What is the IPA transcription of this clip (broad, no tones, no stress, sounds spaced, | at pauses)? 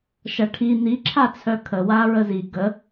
ʃ ɐ ʈʰ i n̪ i ǁʰ a t͡sʰ œ kʰ ə w a ɹ ə z i ɡ ə